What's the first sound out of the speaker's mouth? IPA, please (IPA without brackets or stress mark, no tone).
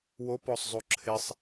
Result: w